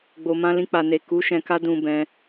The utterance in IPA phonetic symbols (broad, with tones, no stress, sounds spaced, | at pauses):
ɡ͡b o˨ m ã˧ l ĩ˧ k͡p a˨ n e˨ k u˨˦ ʃ ɛ̃˧ k a˦ d ũ˧ b ɛ̃˧